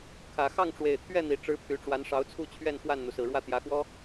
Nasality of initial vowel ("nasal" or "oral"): oral